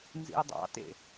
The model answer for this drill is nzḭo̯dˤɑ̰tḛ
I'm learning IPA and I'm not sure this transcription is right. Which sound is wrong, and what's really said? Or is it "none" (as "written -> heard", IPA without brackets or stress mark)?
none